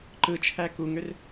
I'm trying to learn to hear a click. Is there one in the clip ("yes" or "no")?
yes